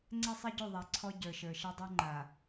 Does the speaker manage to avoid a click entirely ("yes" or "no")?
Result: no